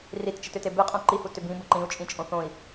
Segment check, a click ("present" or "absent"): present